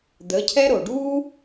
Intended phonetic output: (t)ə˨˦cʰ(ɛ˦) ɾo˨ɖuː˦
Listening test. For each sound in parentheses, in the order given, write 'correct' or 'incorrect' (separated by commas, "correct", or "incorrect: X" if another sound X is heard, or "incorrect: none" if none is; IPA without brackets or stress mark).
incorrect: d̪, correct